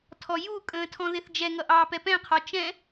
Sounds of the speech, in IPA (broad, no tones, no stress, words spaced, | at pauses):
tʰɔjukʼə̃ː tʰɔ̃ðɪθd͡ʒɛŋʌ ʔɑːpɛpɛ̃qʰɒ t͡ʃɛ̃